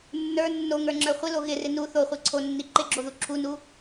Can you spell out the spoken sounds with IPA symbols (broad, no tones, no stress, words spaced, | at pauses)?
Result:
nːə˞ nːoŋə˞ŋ͡ǁə˞ χʷɪlo ɣɪrɪ nu θoχʷi ǀʰonːi ǃɪɡ͡ǁoðu ǁʰunu